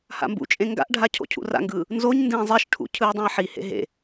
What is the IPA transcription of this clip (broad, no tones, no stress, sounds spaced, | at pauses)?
h a̰ m b ṵ t͡ʃʼ ẽ ŋ ɡ a̰ ʔ ɖʱ a cʰ o̰ cʰ ṵ r a̰ ŋ ɡ ɯː | n z o ɲ n d ẽː zˤ e ʃ ʈʰ ṵ cʰ ɯː dˤ ã e̯ ħ i h ḛ ɦ ḛ